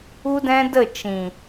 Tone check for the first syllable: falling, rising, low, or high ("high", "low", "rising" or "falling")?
high